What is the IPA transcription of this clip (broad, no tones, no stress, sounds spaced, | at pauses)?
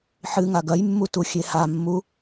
ħ ɨ ŋ a ɡ ɐ j mː u t u xʲ e h a mː u